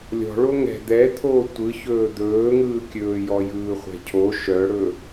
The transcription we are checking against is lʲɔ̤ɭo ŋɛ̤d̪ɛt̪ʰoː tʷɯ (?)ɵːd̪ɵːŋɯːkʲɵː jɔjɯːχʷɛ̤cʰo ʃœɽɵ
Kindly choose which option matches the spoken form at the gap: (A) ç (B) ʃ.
A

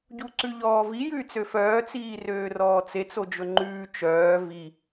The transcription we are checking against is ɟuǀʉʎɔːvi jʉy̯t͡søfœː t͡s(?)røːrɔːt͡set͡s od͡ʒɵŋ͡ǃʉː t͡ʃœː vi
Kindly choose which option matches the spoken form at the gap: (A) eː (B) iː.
B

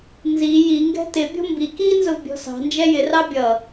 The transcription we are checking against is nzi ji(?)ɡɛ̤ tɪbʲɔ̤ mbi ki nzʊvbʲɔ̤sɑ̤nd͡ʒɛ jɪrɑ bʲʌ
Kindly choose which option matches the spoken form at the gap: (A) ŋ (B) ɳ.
A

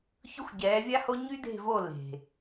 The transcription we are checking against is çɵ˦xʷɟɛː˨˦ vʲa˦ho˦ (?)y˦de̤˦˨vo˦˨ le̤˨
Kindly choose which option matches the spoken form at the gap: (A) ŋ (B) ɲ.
B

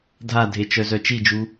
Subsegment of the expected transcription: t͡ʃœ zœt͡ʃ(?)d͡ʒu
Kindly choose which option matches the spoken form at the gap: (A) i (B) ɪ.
A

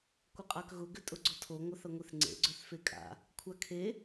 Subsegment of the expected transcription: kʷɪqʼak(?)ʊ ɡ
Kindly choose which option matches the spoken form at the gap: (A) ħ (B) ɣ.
B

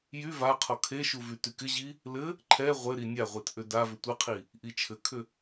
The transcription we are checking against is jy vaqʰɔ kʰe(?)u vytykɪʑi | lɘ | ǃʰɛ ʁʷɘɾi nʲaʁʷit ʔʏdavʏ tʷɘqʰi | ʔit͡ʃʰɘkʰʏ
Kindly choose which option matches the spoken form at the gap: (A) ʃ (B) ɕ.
A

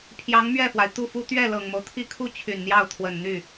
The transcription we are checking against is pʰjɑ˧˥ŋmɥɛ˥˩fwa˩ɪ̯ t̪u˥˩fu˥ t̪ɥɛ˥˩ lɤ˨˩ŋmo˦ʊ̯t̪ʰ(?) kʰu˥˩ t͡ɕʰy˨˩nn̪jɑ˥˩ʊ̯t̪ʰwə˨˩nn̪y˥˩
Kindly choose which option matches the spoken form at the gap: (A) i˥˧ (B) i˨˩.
A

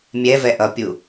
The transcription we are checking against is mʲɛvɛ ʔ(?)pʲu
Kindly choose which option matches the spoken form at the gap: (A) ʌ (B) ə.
A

